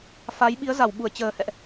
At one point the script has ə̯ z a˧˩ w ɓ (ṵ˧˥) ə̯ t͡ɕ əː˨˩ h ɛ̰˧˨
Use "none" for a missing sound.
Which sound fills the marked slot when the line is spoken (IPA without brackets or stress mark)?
u˧˩